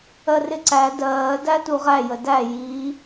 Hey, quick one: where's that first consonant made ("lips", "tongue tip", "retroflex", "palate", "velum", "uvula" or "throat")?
tongue tip